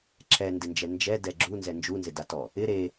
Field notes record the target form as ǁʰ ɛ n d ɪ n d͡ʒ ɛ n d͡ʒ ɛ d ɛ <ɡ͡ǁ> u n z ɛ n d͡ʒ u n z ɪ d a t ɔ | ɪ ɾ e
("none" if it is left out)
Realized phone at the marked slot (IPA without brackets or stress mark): ɡ͡ǁ